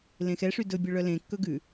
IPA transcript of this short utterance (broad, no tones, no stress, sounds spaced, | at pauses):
l ẽ x ɛ ʂ y d ɵ bʲ œ ɭ œ l ẽ kː ɵ ɡ ʉ